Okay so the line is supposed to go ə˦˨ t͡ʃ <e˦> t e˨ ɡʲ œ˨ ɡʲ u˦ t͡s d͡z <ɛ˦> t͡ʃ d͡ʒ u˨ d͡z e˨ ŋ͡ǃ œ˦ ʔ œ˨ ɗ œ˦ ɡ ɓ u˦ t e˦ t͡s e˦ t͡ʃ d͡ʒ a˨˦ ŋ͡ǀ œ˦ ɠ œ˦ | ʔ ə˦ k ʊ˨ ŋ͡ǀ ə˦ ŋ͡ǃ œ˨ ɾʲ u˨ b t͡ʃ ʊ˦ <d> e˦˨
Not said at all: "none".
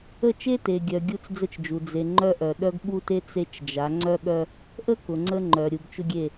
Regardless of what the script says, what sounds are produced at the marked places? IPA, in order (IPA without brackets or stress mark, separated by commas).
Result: e˦, ə˦, ɡʲ